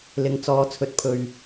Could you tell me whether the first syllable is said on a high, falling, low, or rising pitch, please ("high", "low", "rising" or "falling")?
low